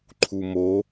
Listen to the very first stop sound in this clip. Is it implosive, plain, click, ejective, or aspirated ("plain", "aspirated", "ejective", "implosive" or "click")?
click